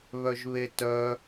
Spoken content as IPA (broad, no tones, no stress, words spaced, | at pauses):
βœʒβetœ